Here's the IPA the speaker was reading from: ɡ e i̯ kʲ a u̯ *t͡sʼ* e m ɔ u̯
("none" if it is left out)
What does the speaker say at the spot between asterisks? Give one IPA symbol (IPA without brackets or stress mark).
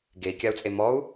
t͡sʼ